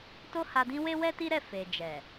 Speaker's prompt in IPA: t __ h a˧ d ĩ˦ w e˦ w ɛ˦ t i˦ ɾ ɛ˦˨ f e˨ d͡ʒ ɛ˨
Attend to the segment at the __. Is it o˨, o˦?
o˦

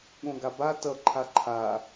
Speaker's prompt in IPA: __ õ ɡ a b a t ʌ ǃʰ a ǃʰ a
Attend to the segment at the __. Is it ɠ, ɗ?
ɠ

